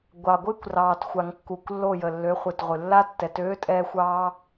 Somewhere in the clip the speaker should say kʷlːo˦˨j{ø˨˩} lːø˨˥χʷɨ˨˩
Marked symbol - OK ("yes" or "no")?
no